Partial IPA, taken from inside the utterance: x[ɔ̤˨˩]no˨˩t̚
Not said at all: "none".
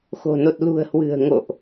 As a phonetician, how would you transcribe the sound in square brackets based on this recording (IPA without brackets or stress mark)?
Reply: o̤˨˩